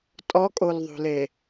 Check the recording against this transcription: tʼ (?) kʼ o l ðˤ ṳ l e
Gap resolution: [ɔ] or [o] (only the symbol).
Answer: ɔ